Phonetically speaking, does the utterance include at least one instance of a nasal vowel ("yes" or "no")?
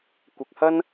no